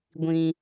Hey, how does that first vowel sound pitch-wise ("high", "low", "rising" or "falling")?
high